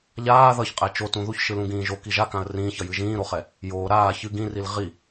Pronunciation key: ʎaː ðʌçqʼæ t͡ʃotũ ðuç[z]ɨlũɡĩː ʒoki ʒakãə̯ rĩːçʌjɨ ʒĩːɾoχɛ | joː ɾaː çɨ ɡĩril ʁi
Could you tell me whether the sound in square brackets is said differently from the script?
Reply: yes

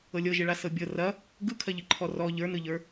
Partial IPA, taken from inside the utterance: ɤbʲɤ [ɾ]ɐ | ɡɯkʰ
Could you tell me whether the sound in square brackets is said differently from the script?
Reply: yes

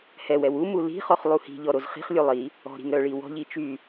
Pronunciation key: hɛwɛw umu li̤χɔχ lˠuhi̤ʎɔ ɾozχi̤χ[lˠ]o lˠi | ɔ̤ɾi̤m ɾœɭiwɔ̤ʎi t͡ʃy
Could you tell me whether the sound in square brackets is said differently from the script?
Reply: yes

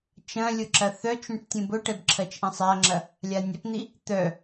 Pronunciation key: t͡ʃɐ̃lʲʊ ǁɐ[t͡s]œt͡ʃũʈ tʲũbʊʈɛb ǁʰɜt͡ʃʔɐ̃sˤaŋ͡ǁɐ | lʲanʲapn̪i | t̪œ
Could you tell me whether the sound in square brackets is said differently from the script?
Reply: yes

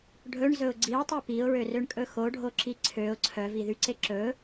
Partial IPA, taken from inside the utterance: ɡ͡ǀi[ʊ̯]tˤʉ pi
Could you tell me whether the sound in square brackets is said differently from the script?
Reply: no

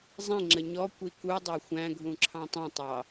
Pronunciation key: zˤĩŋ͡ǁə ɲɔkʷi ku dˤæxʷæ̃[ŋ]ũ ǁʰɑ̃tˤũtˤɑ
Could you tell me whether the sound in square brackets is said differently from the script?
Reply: yes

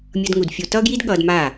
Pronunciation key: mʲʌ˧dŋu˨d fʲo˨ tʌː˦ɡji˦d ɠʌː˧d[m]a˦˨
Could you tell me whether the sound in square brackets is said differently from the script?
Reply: no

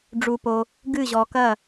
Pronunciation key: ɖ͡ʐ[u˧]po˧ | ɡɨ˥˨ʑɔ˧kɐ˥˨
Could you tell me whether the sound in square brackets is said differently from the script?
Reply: no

